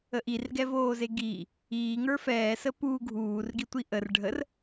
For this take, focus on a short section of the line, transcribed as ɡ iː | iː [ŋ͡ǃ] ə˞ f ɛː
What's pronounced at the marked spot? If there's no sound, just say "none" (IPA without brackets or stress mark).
ŋ